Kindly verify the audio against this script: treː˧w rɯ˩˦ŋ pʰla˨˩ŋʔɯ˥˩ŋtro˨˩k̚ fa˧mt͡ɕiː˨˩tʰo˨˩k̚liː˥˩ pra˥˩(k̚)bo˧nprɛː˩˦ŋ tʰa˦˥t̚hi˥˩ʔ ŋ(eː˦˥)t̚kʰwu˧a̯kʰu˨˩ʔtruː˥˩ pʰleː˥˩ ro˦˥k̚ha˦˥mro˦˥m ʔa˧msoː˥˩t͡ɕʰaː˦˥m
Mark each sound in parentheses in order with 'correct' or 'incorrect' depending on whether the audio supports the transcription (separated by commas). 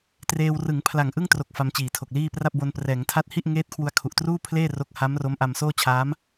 incorrect, correct